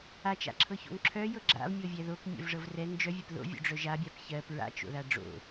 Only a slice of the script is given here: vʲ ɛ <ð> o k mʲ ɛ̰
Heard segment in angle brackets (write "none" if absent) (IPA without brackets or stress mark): ð